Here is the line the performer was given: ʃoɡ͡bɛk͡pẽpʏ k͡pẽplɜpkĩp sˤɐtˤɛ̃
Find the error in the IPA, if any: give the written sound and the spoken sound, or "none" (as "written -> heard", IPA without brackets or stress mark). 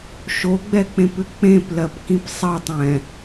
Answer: none